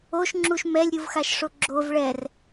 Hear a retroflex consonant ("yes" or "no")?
yes